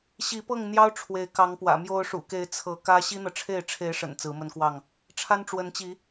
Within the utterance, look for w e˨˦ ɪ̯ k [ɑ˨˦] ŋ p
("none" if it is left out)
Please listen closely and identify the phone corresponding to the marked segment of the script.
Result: ɑ˨˦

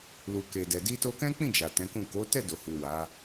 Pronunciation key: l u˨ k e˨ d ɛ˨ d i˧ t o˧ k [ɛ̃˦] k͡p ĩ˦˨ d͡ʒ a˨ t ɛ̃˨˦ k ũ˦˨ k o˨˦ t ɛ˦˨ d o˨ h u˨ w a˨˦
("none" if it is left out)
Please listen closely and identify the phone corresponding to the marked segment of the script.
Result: ɛ̃˦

